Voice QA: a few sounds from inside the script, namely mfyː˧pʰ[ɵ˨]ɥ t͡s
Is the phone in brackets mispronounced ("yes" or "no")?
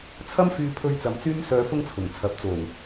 yes